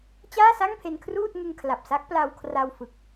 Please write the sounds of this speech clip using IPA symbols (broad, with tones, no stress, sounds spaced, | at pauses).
t͡ɕ aː˥˩ s a˥˩ ŋ pʰ e˧ n kʰ r uː˥˩ t̚ ŋ ɯ˧ ŋ kʰ l a˨˩ p̚ s a˦˥ k̚ p l a˧ w kʰ r a˧ w f ɯ˨˩ k̚